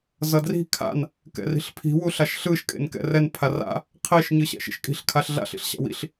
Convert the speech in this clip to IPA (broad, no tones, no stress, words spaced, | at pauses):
zʌdri̤ kʰa̰n | kɛ̰ri̤ɬpʰi̤ wuɬaʃɬɯʃ kʼḛnkɛ̰rɛn pʰara̰ | qʰeʃ ɲɯɕɛ̰ʃḭʃkʼi̤ɬ kʰaɬɮa̰ɬ ḭɬɕa̰wḭɬ